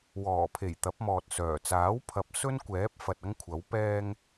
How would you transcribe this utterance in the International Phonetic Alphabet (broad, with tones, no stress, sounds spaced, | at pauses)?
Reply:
w ɔː˨˩ pʰ e˨˩ j t̪ ɐ˨˥ p̚ m ɔː˨ t̚ s œː˨˩ t͡s aː˨˥ w pʰ ɐ˨˥ p̚ s ɵ˥ n kʷ ɛː˨˥ p̚ f ɐ˨ t̚ ɐ˥ ŋ kʷʰ ɐ˨˥ w p ɛː˧ ŋ